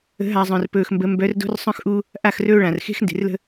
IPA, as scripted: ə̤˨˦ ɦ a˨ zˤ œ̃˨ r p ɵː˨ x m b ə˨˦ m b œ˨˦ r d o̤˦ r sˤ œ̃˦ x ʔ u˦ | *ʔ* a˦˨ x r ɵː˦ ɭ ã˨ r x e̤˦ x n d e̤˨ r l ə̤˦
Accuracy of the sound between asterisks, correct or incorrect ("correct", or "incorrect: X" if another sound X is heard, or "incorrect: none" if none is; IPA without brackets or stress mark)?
correct